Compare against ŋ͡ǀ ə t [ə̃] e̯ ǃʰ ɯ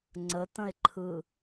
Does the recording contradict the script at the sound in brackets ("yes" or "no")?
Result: no